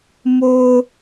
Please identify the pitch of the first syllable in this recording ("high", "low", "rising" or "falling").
low